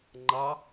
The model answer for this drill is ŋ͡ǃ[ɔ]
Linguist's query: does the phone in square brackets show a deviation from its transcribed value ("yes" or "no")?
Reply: yes